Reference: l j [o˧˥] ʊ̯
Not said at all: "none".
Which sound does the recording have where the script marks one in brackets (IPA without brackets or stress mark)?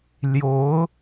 o˧˥